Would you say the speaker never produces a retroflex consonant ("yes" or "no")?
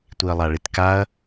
no